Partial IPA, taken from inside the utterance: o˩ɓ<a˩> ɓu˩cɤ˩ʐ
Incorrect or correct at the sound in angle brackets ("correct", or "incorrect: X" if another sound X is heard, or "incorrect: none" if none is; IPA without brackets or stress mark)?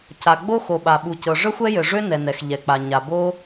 correct